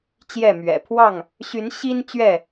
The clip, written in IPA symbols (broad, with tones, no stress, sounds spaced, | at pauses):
t͡ɕ j ɛ˥˨ m ɥ ɛ̰˨˩ pʰ w ɑ˥˨ ŋ | ɕ y˨˦ n ɕ i˦ n t͡ɕ ɥ ɛ˥˨